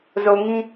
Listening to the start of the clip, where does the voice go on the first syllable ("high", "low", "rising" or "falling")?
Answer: low